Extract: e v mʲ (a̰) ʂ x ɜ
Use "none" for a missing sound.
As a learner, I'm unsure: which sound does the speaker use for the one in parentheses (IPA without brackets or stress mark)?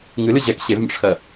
a̰